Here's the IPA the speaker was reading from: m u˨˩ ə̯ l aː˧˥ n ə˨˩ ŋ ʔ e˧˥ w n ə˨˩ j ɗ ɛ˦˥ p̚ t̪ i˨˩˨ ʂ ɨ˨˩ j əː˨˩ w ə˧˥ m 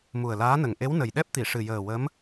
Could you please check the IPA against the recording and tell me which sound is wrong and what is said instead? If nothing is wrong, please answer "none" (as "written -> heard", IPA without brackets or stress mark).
none